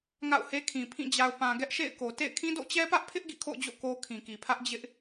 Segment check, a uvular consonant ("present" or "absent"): absent